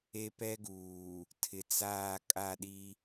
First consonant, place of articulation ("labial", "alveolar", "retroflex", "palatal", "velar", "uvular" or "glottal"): labial